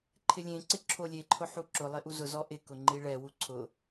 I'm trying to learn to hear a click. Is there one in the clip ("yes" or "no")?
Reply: yes